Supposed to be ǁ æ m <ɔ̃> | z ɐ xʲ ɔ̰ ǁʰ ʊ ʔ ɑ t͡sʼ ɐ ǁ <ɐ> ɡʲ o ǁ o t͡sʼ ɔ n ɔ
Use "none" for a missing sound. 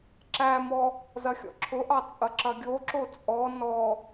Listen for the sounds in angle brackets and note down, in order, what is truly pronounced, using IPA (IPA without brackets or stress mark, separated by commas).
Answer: ɔ, ɐ